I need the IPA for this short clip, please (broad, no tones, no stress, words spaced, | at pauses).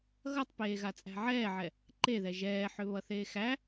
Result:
ɣʌtˤpeː ɣat͡sʼæ̤ʕɛːʕɛ | ǃeðɛ ʒɛːħʏ βʌθeːxæ